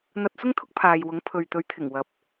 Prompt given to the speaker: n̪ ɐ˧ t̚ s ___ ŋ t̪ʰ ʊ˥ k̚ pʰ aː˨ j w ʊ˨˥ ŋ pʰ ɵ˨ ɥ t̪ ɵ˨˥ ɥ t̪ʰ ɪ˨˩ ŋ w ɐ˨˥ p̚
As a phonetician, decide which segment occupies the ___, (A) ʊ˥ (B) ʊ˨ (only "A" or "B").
A